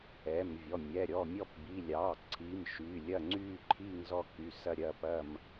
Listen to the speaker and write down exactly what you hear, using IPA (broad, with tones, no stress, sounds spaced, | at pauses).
ɛ˩˧˩ m vʲ ɔ˩˧˩ mʲ ɛ˩˧˩ ɾʲ ɔ˩˧˩ mʲ ɔ˦˨ p b i˩˧˩ lʲ ɑː˩˧˩ ǀʰ i˩˧˩ m ʃ yː˩˧˩ lʲ ɐ˦˨ ŋ͡ǀ yː˦˨ ǃʰ iː˦˨ ŋ z ɔ˦˨ k y˩˧˩ s ɐ˦˨ ɾʲ ɐ˦˨ p ɐ˦˨ m